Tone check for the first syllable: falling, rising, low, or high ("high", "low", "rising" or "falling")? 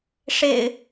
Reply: low